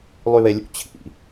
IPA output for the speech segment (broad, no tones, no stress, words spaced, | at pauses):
lˠyβelʲṵ t͡ɕʰḭ